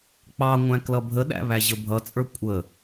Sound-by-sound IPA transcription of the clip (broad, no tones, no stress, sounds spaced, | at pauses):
k͡p ɑ ŋʷ æ̃ k l ʌ bʱ ə ɗ æ̰ β æ ʑ ə bʱ ʌ t͡sʼ ə˞ kʷʼ ə